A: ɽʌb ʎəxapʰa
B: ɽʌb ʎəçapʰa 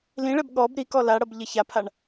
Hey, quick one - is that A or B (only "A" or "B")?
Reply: B